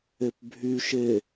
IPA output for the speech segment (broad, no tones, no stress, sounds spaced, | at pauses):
e p bʱ y ʃ e